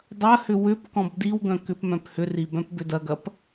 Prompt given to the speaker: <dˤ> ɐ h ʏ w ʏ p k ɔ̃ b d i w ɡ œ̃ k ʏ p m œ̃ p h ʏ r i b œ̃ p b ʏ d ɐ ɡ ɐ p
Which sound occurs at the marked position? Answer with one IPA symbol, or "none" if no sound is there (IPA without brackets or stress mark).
dˤ